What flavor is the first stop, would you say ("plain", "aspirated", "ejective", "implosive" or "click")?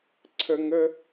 click